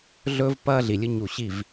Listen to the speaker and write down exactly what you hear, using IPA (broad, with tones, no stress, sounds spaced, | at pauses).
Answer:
ɮ ɵː˦ v p ɐː˦ ɮ i˨ lʲ ɨ˦ ɲ u˨ ɕ i˦˨ v